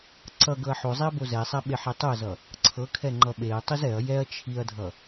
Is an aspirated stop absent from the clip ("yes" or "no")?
no